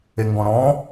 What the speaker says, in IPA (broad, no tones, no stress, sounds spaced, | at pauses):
e ŋ ɡ ɔ̃ ɾ ɔ̃